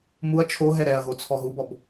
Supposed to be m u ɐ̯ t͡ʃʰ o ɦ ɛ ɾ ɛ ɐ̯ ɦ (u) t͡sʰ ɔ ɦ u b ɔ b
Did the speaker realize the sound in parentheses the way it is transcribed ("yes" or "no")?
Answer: no